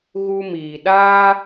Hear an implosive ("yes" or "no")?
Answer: yes